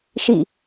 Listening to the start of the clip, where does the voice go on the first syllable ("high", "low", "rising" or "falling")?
falling